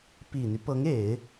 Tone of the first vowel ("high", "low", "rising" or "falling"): low